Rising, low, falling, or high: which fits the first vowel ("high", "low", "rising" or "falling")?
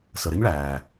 low